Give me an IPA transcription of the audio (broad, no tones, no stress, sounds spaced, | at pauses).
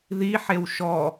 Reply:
ð i ħ e w ʃ ɔ